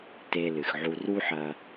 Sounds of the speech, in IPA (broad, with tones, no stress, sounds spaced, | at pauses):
t e˧ l ɨ˩ x ʕ u˧ r u˥ ħ ɐ˧